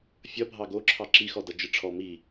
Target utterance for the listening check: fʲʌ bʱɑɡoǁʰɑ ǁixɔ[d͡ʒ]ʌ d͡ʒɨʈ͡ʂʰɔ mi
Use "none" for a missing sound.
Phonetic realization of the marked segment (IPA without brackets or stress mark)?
d